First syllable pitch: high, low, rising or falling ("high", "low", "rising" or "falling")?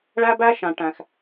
high